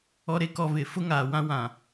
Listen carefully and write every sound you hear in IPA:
ɔ˨ ɾ e˨ k ɔ˨ v ɪ˨ f ʊ˦ ŋ aː˨ w ã˦ w ã˨

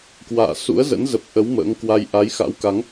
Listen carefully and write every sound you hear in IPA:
k w a̰ː˧˨ s ṵ˧˥ ə̯ z ə̰˧˥ n z ə˨˩ p̚ ʔ ə˨˦ w m ə̰ː˧˥ ŋ k w a˧ j ʔ a˨˦ j x a̰˧˥ w k a˨˦ ŋ

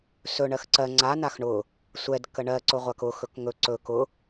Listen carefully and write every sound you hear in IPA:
s ɵ ɳ ɜ x ǀ ɜ ŋ͡ǀ a n a x ɳ ʊ | sʷ ɛ d k ə ɳ ɜ ǀ ʊ ʁʷ a k ʊ x ɵ k ŋ ɵ ǀ ɵ k ʊ

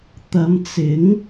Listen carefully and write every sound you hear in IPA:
t̪ ɐ˨˧ m t͡s ɪ˨˥ ŋ

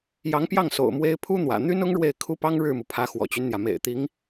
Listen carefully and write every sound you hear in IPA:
j ɑ˧˥ ŋ p j ɑ˥˩ ŋ s o̰˨˩ ʊ̯ m w e˥ ɪ̯ pʰ u˥ n̪ w ä̰˨˩ n̪ y˥ n ʊ˥ ŋ ɻ w e˥˩ ɪ̯ kʰ u˥ p ɑ˥ ŋ ɻ ɻ̩˥˩ m u˩ pʰ ä˧˥ x w ɔ̰˨˩ t͡ɕ y˦ n n̪ j ä˩ m ḛ˨˩ ɪ̯ t̪ i˧˥ ŋ

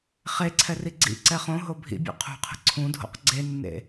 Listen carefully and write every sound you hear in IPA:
χ e ǀʰ ɛ r i ɡ͡ǀ ḭ ǀ ɛ χ õ ɦ o bʱ ḭ bʲ ṵ qʰ ṳ qʰ ə̤ ǀʰ ũ dʱ o̰ q ɡ͡ǀ e nː ḛ

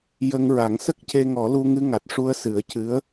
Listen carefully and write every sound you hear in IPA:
j ə˧ ŋ ɹ a˨˩˦ ŋ s ə˦˥ k̚ c e˧ ŋ ɔ˨˩˦ l u˧ ŋ ɨ˧ ŋ a˨˩ t̚ ʂ u˧ ə̯ s ɨ˨˩˦ ə̯ c ɨ˧˥ ə̯

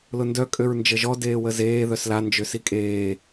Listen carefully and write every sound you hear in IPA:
l ʊ n d œ kʼ ø ɹ n d͡ʒ ə ʒ ɔ d eː w ə z eː ð œ s l a n d͡ʒ ø s i kʼ eː

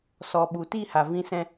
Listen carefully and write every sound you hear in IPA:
s ɔ˨ ɓ u˨ t i˦˨ h a˨ v ĩ˦ s ɛ̃˦

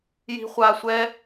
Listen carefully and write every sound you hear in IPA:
j i̤˧ χʷ a˧ sʷ ɛ˦

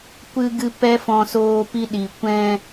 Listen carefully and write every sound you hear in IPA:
kʷ ɨ˧ ɡ ɨ˧ p ɛ˦ f ɔ̃˧ s oː˧ p i˧ ɗ i˨ kʷ ɛ̃˧

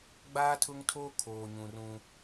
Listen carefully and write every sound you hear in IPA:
ɡ͡b aː˦ tʰ ʊ˦ ŋ tʰ o˦ kʰ oː˨ ɲ ũ˨ r ũ˦

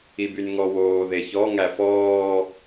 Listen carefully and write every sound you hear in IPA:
i b y n ŋ ɔ w oː ð e ç ɔ ŋ æ f ɔː

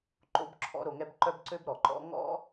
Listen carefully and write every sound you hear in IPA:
ǃ o̰˦ b ǁʰ ɔ̰˥ ɾ o˨ ŋ ɛ˦ b ǃ œ˥ b ǀ ø˥ b ɾ ɔ˩ ǃ ɔ̰˦ ŋ ɔ̰˦

